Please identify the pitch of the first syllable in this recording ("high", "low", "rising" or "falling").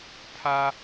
high